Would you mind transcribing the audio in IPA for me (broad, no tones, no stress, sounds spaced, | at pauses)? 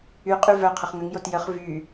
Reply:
y qʼ y v œ qʰ ə χ ŋ ə ŋ j o t j ə χ v y